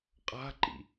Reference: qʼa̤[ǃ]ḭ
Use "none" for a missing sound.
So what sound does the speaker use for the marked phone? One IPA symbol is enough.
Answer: ǃ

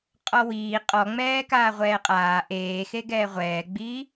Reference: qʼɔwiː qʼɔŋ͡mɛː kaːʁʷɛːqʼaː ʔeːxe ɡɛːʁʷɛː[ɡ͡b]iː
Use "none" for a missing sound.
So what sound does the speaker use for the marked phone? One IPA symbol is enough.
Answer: ɡ͡b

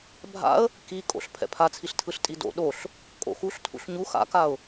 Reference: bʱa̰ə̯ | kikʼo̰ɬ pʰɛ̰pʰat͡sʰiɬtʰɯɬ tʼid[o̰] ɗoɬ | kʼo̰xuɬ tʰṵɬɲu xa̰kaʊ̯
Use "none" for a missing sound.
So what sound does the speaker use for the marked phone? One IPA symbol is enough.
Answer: o̰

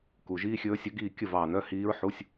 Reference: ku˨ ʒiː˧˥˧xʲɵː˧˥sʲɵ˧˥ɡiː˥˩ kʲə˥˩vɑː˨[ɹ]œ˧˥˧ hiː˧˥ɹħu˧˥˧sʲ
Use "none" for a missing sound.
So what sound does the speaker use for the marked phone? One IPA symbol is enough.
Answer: n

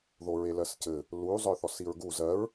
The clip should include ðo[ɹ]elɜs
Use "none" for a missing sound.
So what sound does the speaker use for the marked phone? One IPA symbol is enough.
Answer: ɹ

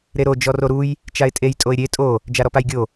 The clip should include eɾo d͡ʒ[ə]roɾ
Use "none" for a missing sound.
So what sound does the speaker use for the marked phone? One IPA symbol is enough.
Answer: ɔ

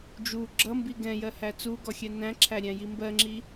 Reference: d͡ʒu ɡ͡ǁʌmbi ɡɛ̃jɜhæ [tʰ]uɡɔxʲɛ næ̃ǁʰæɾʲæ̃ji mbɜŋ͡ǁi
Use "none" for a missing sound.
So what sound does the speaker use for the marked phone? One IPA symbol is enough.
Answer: t͡s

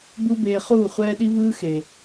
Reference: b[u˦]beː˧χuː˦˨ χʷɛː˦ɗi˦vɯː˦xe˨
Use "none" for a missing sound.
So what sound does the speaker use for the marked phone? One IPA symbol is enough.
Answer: u˦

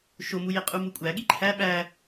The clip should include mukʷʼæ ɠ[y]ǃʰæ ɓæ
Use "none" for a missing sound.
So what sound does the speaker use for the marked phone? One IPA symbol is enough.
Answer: i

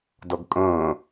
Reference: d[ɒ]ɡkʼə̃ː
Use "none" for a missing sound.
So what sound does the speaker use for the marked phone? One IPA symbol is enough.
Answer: ʌ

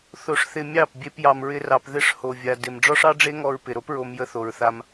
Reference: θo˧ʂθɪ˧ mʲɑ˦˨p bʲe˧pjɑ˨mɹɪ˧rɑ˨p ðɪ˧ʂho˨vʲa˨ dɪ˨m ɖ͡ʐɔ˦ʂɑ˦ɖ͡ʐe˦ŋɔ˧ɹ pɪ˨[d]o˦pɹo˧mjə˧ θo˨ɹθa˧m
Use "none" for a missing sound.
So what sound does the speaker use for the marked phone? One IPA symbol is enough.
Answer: ɾ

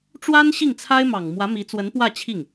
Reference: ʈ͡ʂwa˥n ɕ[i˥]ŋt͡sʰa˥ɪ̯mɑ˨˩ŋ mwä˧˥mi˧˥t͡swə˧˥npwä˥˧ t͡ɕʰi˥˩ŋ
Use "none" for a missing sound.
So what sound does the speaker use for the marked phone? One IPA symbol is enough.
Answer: i˥˩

